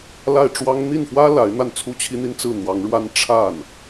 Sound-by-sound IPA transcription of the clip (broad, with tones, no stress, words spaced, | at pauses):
la˥˩ɪ̯ʈ͡ʂwɑ˥ŋ n̪i˥˩nfwä˥ la˧˥ɪ̯ n̪a˥˩nt͡sʰu˥t͡ɕʰi˥n̪i˥n t͡sɹ̩˥˩n̪wɑ˧˥ŋɻwa˥n ʈ͡ʂʰa˥˩n